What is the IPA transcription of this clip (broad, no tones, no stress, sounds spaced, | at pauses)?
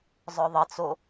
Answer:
zˤ œ ðˤ ə t͡s o